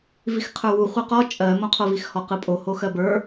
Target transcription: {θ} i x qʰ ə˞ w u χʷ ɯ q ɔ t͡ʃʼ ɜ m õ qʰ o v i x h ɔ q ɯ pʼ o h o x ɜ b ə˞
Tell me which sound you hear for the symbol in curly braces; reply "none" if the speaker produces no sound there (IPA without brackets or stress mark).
v